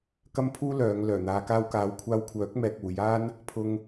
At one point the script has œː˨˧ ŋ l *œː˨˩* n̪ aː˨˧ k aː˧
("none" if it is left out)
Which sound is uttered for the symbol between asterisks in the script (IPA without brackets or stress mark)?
œː˨˩